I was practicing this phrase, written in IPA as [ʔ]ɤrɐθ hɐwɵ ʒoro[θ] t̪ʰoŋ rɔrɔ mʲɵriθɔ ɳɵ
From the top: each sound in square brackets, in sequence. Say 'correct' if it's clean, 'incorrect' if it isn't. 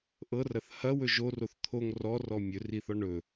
correct, correct

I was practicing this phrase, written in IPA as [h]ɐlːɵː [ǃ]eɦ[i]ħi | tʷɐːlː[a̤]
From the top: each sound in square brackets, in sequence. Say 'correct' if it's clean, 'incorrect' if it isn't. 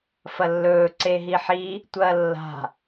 incorrect, incorrect, correct, correct

